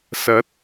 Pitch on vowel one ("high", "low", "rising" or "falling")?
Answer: rising